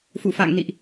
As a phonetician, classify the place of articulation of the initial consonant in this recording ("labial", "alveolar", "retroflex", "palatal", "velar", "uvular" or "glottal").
labial